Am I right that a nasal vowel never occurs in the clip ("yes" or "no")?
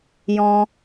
no